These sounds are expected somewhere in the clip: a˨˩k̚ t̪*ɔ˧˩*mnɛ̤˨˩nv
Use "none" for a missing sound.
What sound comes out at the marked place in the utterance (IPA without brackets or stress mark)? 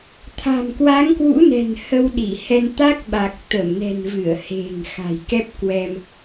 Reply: ə˧˩